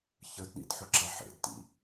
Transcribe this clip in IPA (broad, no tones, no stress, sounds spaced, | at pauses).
ç ə d ɗ ḭ d ħ ʊ ǁ a ħ ḛ d t ḭ